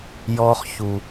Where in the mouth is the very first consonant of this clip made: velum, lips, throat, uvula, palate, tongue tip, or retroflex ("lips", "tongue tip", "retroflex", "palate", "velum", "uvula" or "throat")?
palate